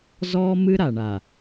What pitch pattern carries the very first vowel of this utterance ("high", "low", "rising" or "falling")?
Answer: high